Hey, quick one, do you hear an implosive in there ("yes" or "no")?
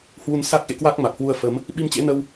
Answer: yes